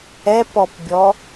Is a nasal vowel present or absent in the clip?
absent